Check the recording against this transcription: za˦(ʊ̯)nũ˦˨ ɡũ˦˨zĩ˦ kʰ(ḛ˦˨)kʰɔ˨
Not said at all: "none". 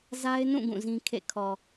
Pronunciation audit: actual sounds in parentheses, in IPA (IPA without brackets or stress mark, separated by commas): ɪ̯, ḛ˦˨